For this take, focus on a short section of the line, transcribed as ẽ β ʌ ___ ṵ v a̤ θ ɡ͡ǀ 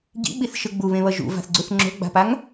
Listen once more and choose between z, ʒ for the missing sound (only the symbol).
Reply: ʒ